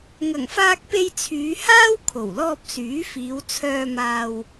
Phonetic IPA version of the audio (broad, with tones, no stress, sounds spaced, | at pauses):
ŋ ɐ˨˩ ŋ f aː˧ k̚ p e˧ j t͡sʰ yː˨˧ h aː˥ w kʰ o˨˩ w l ɔː˧ p̚ s yː˨˥ f iː˨˧ w t͡sʰ œː˧ m aː˧ w